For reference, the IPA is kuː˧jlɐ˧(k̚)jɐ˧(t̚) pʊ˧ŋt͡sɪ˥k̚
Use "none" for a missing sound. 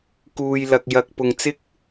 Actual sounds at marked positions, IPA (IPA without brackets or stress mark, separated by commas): k̚, k̚